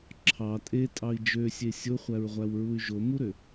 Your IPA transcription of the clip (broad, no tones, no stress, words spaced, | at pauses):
ǁʰɑ tʼetʼɑi̯ d͡ʒøsʲe sʲoχʷæɹʁʷæwɹuy̯ ʒomuɾø